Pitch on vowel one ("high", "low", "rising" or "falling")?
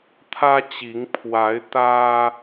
high